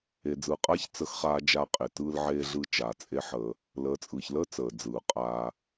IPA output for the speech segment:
e˨ d͡z ɯː˨ qʼ a˦ ç t͡s ə˧ x χ aː˧ d͡ʒ a˧ qʼ e˨ t ɯː˧ l ʕ eː˧ ɮ ɯː˧ t͡ʃ aː˨ t͡sʼ e˦ ħ əː˧ | l əː˨˦ t͡sʼ ɯː˨ ç l əː˦ t͡s əː˨ d͡z ɯː˨ qʼ aː˧

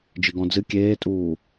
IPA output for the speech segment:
d͡ʒ ɨ ɡ ɔ̃ d͡z ɨ kʲ eː tʼ uː

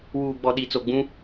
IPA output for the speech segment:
w uː˨ ɡ͡b ɔ˨ ɗ i˨ t͡s o˨ ɡ͡b ũ˦

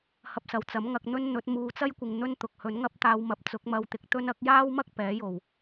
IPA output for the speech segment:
h ɐ˧ p̚ s ɐ˨˧ w t͡s ɐ˨˥ m ŋ ɐ˧ k̚ n̪ ɵ˥ n n̪ ɵ˨˥ t̚ m uː˨˧ t͡s ɐ˥ j kʷ ɪ˨ ŋ n̪ ɵ˥ n t̪ ʊ˨ k̚ h ɵ˨˥ n ŋ ɐ˥ p̚ t̪ aː˧ w m ɐ˨ p̚ t͡s ʊ˨˥ k̚ m ɐ˧ w t̪ ɪ˨˥ k̚ t̪ ɵ˥ n ɐ˨˥ k̚ j aː˥ w m ɐ˥ k̚ p ɛː˨˥ j o˨˩ w

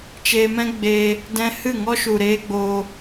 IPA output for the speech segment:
t͡ʃ eː˧ m ɛ̃˦ ɡ͡b eː˧ | d ɛ̃˦ h ɨ˦˨ ŋ ɔ˦ ʃ u˨ ɾ eː˦ ɡ͡b oː˧

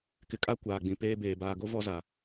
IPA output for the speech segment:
k ɪ˨ kʼ a˦ kʷ aː˨ ɡ͡b ĩ˨ p eː˦ b eː˨ b aː˨ ɡ o˦ v ɔ˦ z a˨

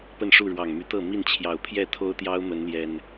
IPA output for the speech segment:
p ə˥˨ n ʂ u˥˨ ɻ w ɑ˨˩ ŋ m y˨˦ t̪ ɤ˥˨ m i˥˨ n t͡ɕʰ j ɑ˨˩ ʊ̯ pʰ j ɛ˥˨ t̪ʰ o˦ ʊ̯ t̪ j ɑ˦ ʊ̯ m ə˨˦ n l j ɛ˨˩ n

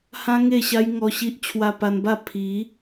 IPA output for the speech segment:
h ã˦ ŋ e˥˧ ɕ a˦ j ŋ ɔ˧ ɕ i˦ ʔ t͡ɕʰ w a˧ p a˧ n b a˥˧ pʰ i˨˦

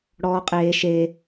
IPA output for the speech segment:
ɽ ɔː qʼ eː ʃ e

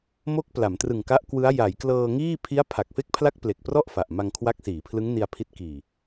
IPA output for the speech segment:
m o˦˥ k̚ p l a˩˦ m t r ɯ˨˩ ŋ k a˦˥ ʔ k w ɯ˦˥ a̯ j a˩˦ j k l ɤː˧ ŋ iː˥˩ pʰ i˦˥ a̯ pʰ a˨˩ k̚ f e˦˥ k̚ pʰ l a˦˥ k̚ p l e˨˩ k̚ p r ɔ˥˩ ʔ f a˨˩ ʔ m a˧ ŋ kʰ w a˦˥ k̚ s iː˩˦ pʰ l ɯ˦˥ ŋ n i˧ a̯ pʰ i˦˥ t̚ k iː˨˩

